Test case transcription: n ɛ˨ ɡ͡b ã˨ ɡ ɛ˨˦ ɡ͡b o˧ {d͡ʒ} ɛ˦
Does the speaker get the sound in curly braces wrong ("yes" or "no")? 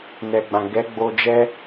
no